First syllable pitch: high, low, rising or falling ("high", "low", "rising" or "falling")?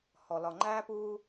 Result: low